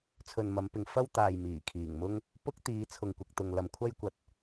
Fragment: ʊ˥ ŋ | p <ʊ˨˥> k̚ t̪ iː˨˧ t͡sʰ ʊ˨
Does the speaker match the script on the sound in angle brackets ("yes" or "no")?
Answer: no